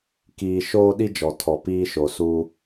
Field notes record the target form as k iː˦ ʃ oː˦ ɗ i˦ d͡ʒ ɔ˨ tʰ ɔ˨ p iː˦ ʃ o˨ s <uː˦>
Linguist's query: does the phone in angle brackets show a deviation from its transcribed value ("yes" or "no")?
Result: no